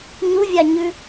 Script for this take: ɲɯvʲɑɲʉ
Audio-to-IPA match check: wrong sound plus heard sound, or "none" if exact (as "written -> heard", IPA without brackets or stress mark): ɯ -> u